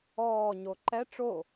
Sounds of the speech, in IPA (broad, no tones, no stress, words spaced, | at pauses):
ɔːɲo ǃɛ ʈ͡ʂo